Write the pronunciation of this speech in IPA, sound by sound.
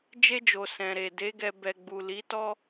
d͡ʒ e˧ d͡ʒ o˨ s ɛ̃˨ ɾ e˨ d e˨˦ ɡ ɛ˧ b ɛ˨ ɡ͡b u˨ l i˨˦ t ɔ˦

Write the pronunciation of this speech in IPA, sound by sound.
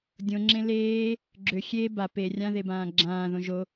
dʲ õ ŋ͡ǁ ẽ l eː | ɡ͡ǁ ø xʲ e b a p e rʲ ã ð e b ãː ɡ͡ǁ ãː ð õ ʒ o

